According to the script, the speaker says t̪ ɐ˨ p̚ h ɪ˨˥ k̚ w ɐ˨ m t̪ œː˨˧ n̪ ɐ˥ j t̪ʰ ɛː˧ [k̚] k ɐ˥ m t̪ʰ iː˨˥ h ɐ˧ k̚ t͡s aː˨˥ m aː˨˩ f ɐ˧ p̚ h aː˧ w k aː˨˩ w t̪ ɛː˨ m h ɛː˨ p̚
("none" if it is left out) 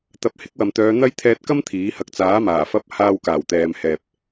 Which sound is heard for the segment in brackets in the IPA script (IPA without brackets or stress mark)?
t̚